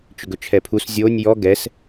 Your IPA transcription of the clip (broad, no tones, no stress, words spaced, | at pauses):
t͡ʃʏɡɵt͡ʃʰɛpʰus zʲonʲ jɔ ɡɛs